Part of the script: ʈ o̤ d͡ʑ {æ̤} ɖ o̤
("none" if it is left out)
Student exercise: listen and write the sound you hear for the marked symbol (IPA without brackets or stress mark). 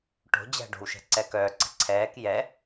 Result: æ̤